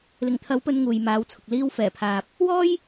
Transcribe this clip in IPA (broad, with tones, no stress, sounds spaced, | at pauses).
l ɪ˨˩ ŋ t̪ʰ ɐ˨˥ w p ɵ˨˧ n ŋ uː˨ j m aː˨˥ w t͡sʰ ʊ˨ k̚ l iː˧ w f ɛː˨˩ pʰ aː˨ p̚ | w ɔː˥ j